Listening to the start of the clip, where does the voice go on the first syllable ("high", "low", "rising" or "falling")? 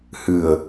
low